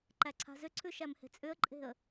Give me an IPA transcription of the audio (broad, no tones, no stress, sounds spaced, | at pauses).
ǃ æ ǀʰ a̤ z ʏ ǀʰ ʉ ʃ æ m h e̤ t͡sʼ ʏ ə̯ ǃʼ e̤ ə̯